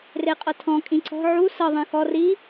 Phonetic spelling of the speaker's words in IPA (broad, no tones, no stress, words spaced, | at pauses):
reqʼɤtʰɔ̃ kʼĩǀɔ̤ ʕu sɤ ðˤẽxɔ ri